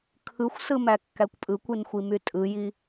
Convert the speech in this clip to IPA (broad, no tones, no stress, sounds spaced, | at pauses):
kʰ ɯ xʷ s ɯ m æ kː æ kʷ pʼ ɯ kʷ i n xʷ i m y tʼ ɯ j i